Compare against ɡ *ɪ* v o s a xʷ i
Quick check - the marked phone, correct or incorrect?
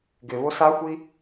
correct